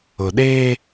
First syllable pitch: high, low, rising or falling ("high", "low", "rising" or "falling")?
low